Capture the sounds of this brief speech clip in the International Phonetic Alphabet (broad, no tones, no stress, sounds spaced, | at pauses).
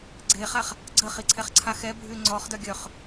ɡ͡ǀ e χ a χ | ɡ͡ǀ ə χ i ǀʰ ɛ χ ǀʰ a x ɛ bʱ y ŋ͡ǀ ɔ χ d œ ɡʲ œ χ